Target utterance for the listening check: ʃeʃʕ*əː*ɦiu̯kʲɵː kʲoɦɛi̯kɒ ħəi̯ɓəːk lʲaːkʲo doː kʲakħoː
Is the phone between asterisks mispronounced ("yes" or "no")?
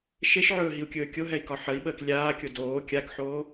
yes